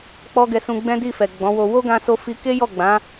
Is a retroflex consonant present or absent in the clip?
absent